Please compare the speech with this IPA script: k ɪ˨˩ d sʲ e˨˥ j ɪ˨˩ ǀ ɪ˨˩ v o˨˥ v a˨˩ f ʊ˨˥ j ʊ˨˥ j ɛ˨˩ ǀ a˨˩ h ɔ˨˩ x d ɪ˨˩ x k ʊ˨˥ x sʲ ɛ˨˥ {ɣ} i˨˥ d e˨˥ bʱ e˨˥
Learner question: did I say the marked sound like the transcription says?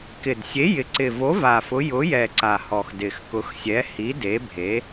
no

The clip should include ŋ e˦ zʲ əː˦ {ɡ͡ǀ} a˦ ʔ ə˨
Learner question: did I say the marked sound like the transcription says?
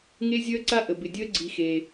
no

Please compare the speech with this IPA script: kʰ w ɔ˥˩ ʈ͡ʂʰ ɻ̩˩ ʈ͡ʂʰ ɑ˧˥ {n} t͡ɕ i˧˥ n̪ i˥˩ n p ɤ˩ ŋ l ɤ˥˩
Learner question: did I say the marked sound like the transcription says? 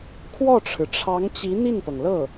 no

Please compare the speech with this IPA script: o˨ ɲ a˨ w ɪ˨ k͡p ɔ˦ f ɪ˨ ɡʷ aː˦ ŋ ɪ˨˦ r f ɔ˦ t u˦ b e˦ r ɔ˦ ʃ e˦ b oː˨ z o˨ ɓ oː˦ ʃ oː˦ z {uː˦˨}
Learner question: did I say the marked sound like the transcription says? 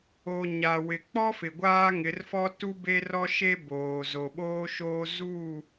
yes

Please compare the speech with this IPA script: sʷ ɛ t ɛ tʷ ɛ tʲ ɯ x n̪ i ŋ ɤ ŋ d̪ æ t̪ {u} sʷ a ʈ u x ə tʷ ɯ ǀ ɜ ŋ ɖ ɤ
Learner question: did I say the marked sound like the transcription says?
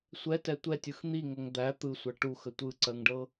no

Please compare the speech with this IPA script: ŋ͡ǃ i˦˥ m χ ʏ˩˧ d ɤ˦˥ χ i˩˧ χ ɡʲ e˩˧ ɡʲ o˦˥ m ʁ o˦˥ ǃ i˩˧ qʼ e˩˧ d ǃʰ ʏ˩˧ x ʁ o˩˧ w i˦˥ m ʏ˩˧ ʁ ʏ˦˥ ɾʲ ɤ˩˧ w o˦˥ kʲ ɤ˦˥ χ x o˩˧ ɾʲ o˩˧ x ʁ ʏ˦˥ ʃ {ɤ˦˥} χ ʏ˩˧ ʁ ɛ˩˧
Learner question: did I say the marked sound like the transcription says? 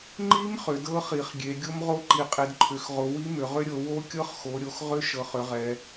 no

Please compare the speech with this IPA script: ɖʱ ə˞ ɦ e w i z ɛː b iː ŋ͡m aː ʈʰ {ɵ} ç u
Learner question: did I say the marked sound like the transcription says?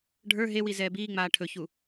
yes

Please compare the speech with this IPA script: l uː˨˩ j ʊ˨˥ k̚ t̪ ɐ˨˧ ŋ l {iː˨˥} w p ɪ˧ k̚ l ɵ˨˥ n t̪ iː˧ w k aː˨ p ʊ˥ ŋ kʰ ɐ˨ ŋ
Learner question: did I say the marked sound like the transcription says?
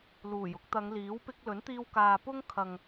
yes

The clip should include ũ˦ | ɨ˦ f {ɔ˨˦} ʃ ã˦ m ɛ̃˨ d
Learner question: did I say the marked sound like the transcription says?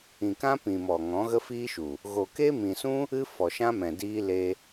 no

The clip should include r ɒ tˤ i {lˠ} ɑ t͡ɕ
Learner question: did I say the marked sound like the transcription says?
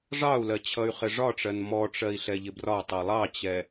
yes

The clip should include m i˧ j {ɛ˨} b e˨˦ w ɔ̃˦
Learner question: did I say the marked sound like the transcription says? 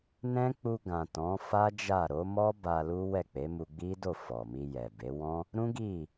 yes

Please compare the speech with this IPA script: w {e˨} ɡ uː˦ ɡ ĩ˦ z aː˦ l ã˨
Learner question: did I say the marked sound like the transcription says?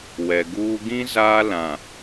no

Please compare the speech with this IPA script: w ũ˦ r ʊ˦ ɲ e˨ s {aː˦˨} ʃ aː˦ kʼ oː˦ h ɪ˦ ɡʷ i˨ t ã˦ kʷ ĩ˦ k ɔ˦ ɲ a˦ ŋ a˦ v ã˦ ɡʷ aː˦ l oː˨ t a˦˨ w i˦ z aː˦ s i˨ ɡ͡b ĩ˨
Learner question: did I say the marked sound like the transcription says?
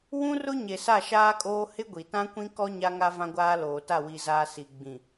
no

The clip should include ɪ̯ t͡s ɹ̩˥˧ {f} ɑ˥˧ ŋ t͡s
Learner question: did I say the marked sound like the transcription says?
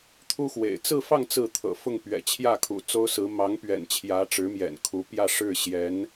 yes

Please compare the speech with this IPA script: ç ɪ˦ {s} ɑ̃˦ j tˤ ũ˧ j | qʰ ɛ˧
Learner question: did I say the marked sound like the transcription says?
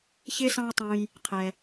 yes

